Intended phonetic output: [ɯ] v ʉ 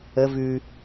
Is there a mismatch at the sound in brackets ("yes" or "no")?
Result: yes